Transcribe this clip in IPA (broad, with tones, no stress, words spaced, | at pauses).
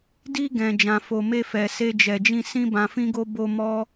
di˧ɡɛ̃˨ d͡ʒã˨fo˨ me˧fɛ˨ se˧d͡ʒɛ˨d͡ʒĩ˧ sĩ˧bã˨fĩ˧ɡo˧ bo˧mɔ˦